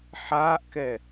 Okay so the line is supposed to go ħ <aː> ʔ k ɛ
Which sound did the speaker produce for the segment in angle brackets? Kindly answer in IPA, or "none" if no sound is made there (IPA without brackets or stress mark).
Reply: aː